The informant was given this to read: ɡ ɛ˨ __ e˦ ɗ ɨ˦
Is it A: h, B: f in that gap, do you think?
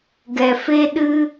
B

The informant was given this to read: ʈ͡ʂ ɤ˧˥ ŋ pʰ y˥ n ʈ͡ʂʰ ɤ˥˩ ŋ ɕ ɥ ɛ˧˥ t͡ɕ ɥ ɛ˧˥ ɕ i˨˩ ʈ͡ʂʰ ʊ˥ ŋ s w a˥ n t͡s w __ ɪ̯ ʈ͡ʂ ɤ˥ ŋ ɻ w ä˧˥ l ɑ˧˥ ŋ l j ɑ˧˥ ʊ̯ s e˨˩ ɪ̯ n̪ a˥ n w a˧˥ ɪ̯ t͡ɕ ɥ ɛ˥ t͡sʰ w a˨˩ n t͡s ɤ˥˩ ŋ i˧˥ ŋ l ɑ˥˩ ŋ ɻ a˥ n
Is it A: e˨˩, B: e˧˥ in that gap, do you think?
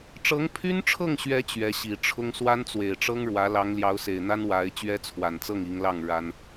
A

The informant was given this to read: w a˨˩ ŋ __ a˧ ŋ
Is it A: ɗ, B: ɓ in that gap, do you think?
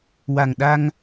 A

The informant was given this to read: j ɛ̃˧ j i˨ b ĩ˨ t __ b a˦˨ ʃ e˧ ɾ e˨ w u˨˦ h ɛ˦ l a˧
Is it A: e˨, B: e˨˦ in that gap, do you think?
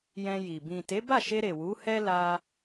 B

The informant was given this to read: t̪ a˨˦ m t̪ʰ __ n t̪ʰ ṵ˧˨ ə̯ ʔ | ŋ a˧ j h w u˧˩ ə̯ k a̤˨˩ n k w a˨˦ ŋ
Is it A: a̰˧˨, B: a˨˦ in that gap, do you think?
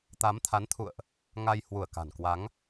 B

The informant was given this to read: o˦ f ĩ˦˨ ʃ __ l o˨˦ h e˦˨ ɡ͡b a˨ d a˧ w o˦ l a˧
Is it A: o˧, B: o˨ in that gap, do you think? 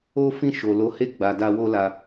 B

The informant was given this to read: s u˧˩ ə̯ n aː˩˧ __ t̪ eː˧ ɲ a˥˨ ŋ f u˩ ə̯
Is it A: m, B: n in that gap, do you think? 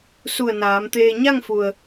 A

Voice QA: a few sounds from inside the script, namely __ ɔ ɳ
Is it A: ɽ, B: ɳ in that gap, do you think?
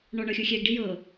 B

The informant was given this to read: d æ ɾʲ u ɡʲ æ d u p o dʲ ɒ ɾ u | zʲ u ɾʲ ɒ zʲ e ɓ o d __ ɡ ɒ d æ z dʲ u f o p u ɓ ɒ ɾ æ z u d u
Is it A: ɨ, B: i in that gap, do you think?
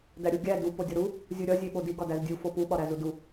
B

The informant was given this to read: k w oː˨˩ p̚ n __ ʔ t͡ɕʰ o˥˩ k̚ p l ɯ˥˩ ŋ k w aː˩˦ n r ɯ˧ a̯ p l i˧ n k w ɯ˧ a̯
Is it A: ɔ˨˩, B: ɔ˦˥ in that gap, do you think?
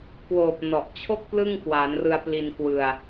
A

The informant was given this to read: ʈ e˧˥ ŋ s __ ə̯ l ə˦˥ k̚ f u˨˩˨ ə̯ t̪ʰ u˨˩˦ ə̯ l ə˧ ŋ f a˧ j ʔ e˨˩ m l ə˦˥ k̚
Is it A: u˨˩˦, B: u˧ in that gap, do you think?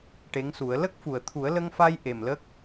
A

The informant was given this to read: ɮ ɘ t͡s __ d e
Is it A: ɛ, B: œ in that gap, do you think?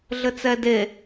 A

